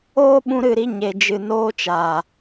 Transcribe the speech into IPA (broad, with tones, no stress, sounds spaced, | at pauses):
oː˦ ɓ ũ˧ ɾ ɨ˦˨ ɾ i˧ ɲ e˨ d͡ʒ ɨ˨ n oː˧ t͡ʃ aː˨